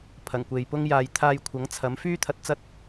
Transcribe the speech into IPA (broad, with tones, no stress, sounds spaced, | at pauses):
pʰ ɐ˨˩ ŋ kʷ e˨ j p ʊ˥ ŋ j aː˧ j t̪ʰ aː˧ j kʷʰ ɐ˨˥ ŋ t͡sʰ ɐ˨˥ m f yː˥ t̪ʰ ɐ˧ t̚ t͡s ɐ˥ t̚